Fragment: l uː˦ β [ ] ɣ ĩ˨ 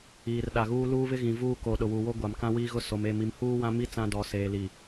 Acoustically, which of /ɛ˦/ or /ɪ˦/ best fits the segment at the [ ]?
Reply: ɪ˦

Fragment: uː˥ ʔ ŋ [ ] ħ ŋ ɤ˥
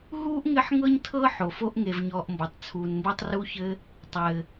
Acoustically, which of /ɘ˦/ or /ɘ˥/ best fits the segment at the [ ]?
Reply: ɘ˦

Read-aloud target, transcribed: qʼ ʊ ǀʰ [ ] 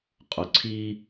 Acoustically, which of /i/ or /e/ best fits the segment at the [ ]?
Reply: i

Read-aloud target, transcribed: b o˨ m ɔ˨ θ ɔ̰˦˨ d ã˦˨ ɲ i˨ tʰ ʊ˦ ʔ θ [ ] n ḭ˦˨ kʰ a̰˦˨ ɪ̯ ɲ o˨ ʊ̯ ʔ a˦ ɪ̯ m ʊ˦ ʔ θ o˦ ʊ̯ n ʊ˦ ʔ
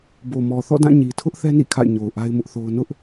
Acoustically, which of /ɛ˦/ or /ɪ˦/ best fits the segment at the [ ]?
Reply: ɛ˦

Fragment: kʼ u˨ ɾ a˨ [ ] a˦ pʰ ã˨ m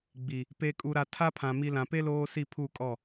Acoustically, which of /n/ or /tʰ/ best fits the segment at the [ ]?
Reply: tʰ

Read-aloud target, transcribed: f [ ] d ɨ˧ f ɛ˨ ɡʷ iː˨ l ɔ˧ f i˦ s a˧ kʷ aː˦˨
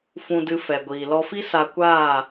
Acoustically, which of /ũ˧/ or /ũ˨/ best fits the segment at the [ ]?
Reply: ũ˧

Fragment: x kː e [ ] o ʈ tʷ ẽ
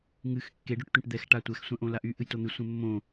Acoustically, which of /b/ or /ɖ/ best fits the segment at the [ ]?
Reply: ɖ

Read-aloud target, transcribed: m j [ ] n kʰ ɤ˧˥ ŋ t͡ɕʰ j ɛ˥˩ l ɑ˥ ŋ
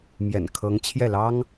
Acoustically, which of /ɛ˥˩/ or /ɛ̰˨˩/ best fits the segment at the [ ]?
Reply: ɛ̰˨˩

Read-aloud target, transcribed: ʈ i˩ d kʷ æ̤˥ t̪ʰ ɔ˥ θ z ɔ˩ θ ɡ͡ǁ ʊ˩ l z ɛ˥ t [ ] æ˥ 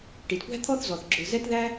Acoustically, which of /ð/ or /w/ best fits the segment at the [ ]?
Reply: ð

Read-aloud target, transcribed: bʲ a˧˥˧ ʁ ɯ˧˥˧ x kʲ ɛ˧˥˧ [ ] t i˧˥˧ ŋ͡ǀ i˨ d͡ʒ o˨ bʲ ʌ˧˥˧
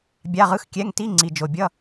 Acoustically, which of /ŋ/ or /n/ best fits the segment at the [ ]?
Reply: ŋ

